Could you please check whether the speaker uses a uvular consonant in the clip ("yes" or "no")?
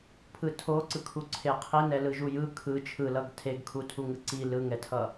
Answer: yes